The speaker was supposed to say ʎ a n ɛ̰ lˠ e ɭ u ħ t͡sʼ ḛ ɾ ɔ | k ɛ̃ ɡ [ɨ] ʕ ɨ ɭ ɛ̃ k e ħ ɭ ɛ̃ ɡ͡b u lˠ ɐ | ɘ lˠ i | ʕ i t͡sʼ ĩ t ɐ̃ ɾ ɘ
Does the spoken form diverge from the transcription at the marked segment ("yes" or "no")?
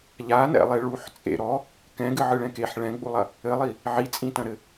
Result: no